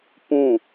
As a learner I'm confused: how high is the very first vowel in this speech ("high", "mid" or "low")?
high